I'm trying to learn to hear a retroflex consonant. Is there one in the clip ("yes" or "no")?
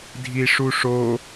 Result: yes